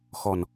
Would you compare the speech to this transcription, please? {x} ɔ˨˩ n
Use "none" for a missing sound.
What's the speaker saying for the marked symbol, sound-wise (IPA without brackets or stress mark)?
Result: x